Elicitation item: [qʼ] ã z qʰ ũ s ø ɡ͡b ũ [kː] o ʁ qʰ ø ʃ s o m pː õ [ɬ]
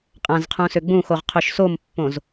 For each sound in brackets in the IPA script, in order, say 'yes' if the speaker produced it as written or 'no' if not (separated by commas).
yes, no, no